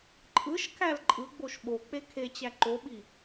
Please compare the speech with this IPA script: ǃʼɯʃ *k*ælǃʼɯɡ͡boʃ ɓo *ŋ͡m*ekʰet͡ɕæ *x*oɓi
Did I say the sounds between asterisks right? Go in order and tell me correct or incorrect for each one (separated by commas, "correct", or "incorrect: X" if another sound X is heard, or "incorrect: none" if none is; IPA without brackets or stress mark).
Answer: correct, incorrect: k͡p, incorrect: ǃ